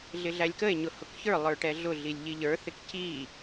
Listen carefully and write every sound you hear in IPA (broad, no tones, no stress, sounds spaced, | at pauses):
ɮ ɪ ɮ æ lʲ k ə e̯ ɲ ʊ h ʊ k ç ə˞ lˠ ə˞ ʈ ɛ ɮ ʊ ɮ i lʲ ʎ i ʎ ə˞ θ ɪ k c i